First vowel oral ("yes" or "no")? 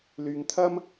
yes